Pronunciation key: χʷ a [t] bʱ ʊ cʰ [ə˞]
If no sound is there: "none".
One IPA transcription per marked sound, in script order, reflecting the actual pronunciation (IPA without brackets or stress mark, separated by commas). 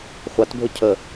t, ə